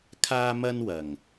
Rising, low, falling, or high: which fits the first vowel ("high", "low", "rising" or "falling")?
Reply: high